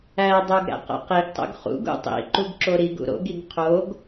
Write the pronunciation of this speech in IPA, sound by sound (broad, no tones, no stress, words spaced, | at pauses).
ædˤoɡ ɾæ̰qæ̰qiɡtˤṵɡ χṵɡ ṵtˤḭǃuɡ ǁoɾiɡṵ ɾo̰ɡiɡ qʰoɡ